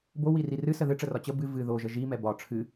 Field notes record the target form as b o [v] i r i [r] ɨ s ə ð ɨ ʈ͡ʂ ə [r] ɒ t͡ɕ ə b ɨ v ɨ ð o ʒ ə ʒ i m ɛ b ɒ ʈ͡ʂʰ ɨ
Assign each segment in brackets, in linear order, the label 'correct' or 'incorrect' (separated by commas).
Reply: incorrect, correct, correct